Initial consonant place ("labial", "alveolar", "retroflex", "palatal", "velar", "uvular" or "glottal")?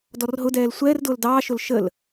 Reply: alveolar